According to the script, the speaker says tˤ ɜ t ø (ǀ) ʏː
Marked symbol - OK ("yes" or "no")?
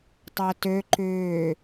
no